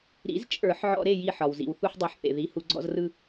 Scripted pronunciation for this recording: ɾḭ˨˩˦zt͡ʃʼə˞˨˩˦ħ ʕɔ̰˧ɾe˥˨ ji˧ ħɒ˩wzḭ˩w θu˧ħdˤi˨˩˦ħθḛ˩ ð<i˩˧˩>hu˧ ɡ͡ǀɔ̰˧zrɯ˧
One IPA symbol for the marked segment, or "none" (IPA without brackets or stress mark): i˩˧˩